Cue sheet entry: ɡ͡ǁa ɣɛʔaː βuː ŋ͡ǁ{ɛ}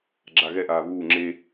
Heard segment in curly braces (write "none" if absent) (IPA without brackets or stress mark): e